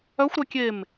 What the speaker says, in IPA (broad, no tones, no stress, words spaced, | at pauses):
œxʷɾœ kʲem